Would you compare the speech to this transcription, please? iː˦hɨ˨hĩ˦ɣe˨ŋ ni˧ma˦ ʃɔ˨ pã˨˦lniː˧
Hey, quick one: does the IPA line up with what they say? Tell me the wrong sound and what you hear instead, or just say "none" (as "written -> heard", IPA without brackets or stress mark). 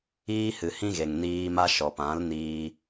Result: i˧ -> iː˧